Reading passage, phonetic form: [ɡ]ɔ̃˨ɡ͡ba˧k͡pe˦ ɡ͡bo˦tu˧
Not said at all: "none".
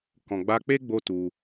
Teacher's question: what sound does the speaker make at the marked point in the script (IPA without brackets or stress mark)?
k